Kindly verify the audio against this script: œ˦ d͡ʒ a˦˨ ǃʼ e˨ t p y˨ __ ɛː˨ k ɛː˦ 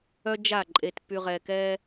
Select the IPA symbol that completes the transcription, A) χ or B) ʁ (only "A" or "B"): B